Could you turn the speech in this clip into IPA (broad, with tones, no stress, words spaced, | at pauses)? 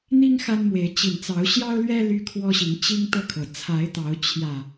n̪i˦ŋ xa˦nmwe˨˦ɪ̯ t͡ɕi˨˩nt͡sɑ˨˦ʊ̯ ɕjɑ˦ʊ̯lɥɛ˦ ly˦kʰwɔ˦ɕi˨˦ŋ t͡ɕi˦ŋt̪ɤ˥˨kʰɤ˩ t͡sʰa˨˦ɪ̯t̪ɑ˨˦ʊ̯ t͡ɕʰjä˨˩